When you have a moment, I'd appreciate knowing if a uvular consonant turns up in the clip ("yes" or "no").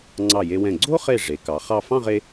yes